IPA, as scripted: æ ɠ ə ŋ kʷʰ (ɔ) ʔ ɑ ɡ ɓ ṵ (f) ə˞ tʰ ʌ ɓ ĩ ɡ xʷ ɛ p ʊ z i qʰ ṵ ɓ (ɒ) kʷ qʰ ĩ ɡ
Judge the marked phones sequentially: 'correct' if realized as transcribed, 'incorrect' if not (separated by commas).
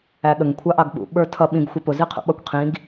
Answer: incorrect, incorrect, incorrect